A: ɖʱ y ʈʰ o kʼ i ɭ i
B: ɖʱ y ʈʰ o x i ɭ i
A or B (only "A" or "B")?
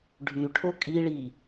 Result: A